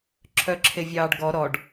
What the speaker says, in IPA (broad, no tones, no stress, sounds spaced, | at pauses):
ǁʰ œ ǁʰ e vʲ ɑː ɖ ɡ ɔ ɾ ɔ ɖ